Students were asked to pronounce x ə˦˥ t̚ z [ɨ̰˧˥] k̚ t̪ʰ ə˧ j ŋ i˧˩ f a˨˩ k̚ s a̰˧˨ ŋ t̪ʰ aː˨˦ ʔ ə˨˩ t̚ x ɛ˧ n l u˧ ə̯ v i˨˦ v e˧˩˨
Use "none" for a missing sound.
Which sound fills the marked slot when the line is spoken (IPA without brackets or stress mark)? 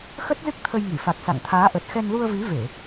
ɨ˦˥